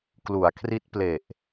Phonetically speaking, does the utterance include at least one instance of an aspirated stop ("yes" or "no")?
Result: yes